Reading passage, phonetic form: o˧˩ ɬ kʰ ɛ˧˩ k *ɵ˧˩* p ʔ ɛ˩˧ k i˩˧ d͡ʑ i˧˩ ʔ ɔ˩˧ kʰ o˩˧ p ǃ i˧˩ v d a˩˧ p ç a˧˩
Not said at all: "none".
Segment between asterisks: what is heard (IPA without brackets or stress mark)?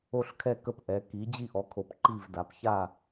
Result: ə˧˩